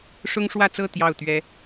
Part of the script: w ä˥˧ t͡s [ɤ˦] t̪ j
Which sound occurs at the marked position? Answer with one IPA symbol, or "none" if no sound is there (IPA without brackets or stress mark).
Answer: ɤ˥˧